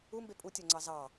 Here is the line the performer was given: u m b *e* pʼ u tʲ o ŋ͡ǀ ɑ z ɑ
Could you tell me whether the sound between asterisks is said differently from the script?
no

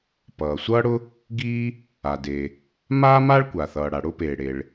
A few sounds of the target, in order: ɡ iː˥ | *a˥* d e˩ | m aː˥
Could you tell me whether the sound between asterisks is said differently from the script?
yes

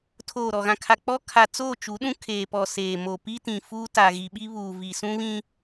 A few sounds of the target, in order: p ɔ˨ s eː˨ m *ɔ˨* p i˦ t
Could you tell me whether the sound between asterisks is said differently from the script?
yes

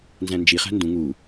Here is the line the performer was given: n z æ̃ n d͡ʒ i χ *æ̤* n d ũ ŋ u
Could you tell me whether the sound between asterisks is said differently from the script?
no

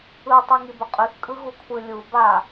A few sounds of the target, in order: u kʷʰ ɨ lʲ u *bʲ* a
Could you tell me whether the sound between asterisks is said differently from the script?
yes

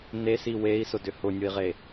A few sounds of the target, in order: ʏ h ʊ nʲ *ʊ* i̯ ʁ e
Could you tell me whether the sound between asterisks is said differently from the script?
no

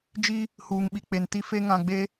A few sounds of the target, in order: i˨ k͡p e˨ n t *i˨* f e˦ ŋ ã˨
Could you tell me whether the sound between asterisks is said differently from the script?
yes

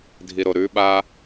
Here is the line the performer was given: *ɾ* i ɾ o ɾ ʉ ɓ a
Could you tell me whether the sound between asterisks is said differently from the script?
yes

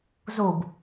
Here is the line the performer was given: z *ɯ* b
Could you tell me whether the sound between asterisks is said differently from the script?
yes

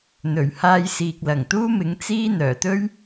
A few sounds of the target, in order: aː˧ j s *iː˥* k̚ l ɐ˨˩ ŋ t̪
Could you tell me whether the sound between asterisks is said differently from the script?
yes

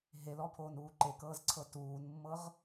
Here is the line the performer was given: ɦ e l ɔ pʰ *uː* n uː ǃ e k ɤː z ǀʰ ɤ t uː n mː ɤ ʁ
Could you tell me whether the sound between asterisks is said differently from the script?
yes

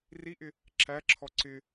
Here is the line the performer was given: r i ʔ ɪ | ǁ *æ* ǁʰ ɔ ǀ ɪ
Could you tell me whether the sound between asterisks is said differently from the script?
no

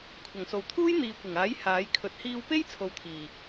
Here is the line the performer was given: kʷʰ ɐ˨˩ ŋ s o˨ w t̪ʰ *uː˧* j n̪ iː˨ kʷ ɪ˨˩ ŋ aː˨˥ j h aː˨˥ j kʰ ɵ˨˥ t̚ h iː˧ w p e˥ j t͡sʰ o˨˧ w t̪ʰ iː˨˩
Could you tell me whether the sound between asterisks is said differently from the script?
yes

